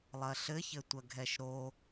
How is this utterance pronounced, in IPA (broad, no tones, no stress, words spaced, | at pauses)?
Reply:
lˠɐɬɘçɘ tʷɐɡʱɛʃɾo